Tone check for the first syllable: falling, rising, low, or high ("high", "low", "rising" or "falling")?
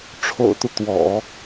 low